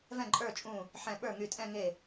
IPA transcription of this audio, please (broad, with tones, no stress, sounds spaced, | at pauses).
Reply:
v ɛ̃˥˩ ǃʼ ə˞˥˩ t͡ʃʼ ũ˥˩ | ħ ɛ̃˧˩ ɓ ə˞˥˩ ŋ y˧˩ tʼ ɛ̃˥˧ ŋ e˥˩